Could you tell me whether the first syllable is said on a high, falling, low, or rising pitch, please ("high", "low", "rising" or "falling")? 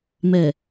low